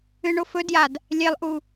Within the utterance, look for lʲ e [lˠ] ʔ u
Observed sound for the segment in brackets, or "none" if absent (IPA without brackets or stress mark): lˠ